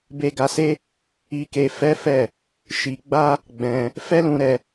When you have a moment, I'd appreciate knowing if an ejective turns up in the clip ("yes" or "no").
no